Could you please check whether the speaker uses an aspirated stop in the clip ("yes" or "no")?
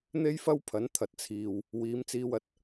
yes